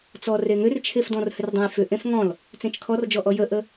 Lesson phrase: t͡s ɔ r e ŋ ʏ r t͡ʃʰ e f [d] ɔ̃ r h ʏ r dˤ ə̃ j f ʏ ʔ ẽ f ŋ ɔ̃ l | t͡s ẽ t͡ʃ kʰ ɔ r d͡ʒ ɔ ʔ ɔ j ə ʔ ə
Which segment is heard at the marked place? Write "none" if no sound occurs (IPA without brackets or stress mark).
d